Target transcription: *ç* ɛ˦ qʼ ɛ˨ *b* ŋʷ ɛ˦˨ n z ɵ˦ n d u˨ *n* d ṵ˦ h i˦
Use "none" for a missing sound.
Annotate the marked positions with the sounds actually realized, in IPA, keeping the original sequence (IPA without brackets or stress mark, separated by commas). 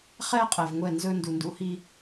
χ, v, n